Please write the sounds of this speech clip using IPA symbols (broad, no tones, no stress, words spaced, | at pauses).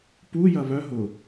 pujɐ βœ ɦʊ